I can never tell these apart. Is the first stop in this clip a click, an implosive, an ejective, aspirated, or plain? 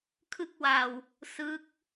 aspirated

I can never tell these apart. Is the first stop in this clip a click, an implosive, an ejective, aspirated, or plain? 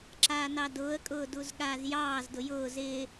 click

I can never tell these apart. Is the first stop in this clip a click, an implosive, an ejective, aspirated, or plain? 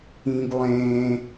plain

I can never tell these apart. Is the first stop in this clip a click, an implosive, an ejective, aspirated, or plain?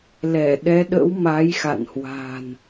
implosive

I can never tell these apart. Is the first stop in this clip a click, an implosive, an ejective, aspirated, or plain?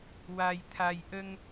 aspirated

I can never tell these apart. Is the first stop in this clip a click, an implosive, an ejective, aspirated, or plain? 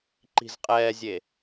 click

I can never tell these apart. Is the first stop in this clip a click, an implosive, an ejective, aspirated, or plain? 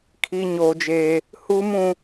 aspirated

